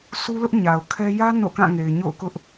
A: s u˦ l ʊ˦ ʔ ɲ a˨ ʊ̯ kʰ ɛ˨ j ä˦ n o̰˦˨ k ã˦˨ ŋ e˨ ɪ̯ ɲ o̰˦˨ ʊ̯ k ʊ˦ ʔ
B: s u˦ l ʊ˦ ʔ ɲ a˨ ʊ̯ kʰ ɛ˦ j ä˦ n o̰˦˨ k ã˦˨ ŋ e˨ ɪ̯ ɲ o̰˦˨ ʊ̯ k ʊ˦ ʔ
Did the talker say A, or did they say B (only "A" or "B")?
B